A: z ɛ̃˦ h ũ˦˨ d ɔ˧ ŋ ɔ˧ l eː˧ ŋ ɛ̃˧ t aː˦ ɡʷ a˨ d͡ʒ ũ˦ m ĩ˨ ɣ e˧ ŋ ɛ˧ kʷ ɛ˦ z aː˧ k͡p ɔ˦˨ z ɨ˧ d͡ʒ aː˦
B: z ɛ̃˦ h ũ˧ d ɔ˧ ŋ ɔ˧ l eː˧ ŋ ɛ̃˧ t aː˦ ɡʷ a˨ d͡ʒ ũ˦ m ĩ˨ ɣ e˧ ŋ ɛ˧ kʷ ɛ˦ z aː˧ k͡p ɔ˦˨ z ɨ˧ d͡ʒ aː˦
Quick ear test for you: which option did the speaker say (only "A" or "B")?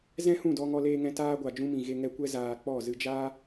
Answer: A